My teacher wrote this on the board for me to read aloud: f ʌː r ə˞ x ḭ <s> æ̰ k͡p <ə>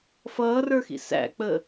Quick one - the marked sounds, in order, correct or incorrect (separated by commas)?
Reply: correct, correct